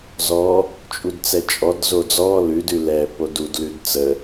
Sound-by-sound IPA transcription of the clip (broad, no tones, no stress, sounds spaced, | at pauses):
z ɔ | t͡ʃʼ u d t͡s ɛ t͡ʃʼ ɔ d z o d͡z ɔ l ʉ d ʉ l ɛ p o d u d l ʉ d t͡s ə